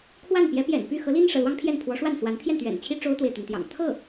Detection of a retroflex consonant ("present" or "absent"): present